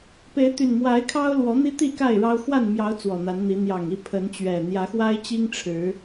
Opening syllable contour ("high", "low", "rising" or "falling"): rising